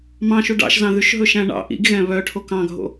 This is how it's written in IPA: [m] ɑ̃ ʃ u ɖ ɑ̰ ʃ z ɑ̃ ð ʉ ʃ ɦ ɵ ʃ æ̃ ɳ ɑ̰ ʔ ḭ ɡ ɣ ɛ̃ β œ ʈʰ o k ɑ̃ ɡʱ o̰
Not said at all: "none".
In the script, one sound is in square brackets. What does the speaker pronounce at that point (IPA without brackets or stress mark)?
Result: m